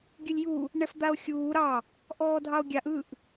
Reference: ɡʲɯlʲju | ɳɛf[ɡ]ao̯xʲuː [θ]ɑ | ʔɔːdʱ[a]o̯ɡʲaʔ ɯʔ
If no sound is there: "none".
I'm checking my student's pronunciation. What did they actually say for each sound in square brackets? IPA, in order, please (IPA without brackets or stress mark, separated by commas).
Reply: d̪, ɾ, ɑ